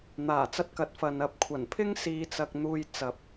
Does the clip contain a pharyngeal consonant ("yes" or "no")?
no